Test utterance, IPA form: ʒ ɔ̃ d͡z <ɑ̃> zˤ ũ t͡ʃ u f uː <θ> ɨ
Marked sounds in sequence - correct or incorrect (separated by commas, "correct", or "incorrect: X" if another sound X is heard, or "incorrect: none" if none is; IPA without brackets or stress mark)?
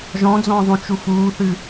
incorrect: ɔ̃, correct